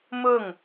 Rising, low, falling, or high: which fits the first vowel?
falling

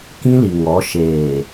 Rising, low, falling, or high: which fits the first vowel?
high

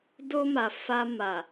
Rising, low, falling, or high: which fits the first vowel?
high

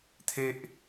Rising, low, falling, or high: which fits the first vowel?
high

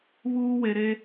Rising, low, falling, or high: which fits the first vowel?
high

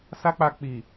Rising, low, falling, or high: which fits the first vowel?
high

